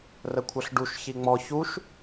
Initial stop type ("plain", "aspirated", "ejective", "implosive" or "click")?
aspirated